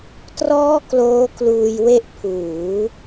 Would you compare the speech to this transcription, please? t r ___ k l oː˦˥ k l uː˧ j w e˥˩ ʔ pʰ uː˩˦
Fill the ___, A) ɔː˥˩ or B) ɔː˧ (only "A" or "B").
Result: A